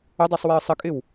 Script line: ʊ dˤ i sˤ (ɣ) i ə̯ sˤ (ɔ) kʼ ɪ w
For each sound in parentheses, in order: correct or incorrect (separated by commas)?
incorrect, incorrect